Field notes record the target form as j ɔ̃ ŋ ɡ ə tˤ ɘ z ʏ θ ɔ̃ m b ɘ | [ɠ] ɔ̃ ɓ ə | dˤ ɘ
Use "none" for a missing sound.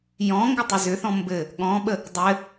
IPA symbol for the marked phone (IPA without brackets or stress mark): ɠ